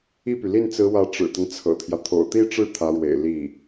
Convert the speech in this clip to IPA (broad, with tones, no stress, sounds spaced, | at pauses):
i˥˩ p y˩ l i˥˩ n t͡s ɹ̩˧˥ w ä˧˥ ʈ͡ʂ ɻ̩˨˩ t̪ ə˦ n t͡sʰ ɤ̰˨˩ t̪ʰ j ä˦ t̪ʰ o̰˨˩ ʊ̯ t̪ i˥˧ ʈ͡ʂ ɻ̩˥˩ t̪ʰ ä˧˥ ɻ w ḛ˨˩ ɪ̯ l i˥˩